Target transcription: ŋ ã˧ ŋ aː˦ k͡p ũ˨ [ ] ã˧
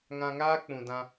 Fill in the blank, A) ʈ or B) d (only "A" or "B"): B